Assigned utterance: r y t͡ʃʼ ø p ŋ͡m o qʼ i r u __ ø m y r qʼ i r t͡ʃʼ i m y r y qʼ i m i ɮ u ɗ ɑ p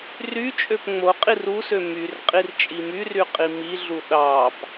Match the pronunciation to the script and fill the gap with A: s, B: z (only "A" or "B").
A